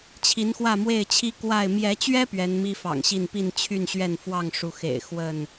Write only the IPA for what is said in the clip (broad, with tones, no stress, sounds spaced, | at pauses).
t͡ɕʰ i˨˦ n x w ä˥˨ m w e˥˨ ɪ̯ t͡ɕʰ i˦ k w a˥˨ ɪ̯ m j ɛ˨˦ t͡ɕ ɥ ɛ˦ p ɥ ɛ˨˦ n m i˦ f ɑ̰˨˩ ŋ ɕ i˥˨ n p i˥˨ n t͡ɕʰ y˥˨ n ɕ ɥ ɛ˥˨ n f w ɑ˥˨ ŋ ʂ u˨˦ x ḛ˨˩ ɪ̯ x w ə˥˨ n